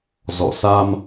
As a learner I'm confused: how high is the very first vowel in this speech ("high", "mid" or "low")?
mid